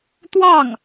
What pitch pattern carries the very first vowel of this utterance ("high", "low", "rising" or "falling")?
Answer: falling